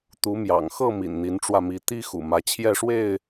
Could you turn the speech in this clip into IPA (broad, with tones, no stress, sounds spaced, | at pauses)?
t̪ u˨˦ m j ɑ̰˨˩ ŋ x ɤ˥˨ m ḭ˨˩ n n̪ i˨˦ n ʈ͡ʂ w ä˧ m i˨˦ t̪ i˦ x ṵ˨˩ m ä˨˦ t͡ɕʰ j ɛ˥˨ ʂ w e˥˨ ɪ̯